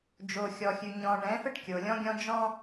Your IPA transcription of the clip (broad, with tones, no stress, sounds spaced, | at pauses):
d͡ʒ o˨ xʲ ɔ˨ xʲ ʉ˨ ɲ ɔ̃˨ ɳ ɛ̃˨˦ f ə˦ ʈ kʲ o˨ lʲ ɔ̃˦ ɡʲ ɔ̃˦ d͡ʒ ɔ̃˦